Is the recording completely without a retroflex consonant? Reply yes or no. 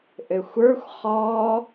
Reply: yes